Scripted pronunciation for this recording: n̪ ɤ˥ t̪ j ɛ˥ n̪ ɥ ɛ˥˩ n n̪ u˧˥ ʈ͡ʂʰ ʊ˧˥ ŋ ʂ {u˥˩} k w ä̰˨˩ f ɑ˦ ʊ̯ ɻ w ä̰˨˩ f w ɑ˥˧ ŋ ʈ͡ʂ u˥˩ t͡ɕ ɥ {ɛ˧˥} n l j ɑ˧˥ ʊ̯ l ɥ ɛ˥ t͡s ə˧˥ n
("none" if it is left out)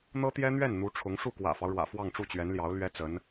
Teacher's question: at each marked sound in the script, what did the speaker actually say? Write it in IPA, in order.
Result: u˥˩, ɛ˧˥

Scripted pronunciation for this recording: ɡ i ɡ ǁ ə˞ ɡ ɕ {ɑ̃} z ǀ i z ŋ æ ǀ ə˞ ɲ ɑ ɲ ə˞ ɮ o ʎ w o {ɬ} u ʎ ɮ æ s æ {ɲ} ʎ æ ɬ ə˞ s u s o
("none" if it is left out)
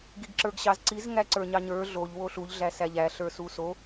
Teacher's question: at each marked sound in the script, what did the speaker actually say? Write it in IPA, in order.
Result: ɑ, ɬ, none

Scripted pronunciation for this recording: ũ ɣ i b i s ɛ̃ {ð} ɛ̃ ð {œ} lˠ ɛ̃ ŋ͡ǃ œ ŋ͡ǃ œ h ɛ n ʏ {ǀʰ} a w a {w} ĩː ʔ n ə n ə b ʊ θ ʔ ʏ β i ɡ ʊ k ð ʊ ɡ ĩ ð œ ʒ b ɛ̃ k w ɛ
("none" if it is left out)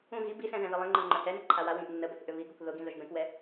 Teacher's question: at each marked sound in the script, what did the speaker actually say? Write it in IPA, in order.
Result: ð, ə, ǃʰ, w

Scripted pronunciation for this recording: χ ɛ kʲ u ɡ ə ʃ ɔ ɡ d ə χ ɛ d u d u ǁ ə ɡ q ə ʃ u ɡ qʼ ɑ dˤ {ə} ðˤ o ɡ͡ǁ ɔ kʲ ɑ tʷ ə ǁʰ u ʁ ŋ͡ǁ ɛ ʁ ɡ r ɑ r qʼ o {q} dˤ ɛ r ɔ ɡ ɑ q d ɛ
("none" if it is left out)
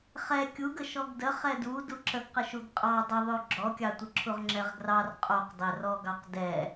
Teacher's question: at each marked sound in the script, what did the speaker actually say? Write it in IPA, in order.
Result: ə, q

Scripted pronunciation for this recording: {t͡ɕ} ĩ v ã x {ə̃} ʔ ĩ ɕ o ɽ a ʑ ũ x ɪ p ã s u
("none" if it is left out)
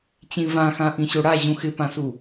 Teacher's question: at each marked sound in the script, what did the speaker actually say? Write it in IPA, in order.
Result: t͡ɕ, ã

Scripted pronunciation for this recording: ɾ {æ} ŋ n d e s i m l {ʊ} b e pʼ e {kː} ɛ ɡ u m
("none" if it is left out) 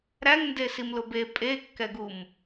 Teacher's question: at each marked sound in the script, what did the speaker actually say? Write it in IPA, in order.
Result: æ, ʊ, kː

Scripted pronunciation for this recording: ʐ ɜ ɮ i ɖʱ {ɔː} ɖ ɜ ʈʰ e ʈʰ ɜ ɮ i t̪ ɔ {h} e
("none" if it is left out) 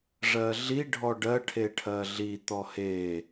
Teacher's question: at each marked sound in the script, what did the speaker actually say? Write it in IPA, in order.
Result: ɔ, h

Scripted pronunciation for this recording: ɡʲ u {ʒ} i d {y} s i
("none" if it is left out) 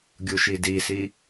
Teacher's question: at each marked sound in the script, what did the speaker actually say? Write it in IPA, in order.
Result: ʃ, i

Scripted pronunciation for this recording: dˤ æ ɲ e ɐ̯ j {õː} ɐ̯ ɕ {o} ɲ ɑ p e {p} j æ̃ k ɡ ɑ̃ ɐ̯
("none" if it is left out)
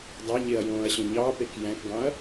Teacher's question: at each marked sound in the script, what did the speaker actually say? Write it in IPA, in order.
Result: õː, õ, k

